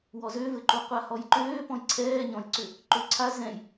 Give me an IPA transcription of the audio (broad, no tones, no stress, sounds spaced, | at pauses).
w ɔ z ø v ɘ ǃ u qʷ a h ɔ j ǃ øː p ɔ̃ j ǀʰ ɛː ɲ ɔ̃ j ǀ ʏ | ǃ ø ǀʰ a z ɛ̃ j